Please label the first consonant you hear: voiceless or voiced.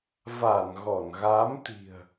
voiced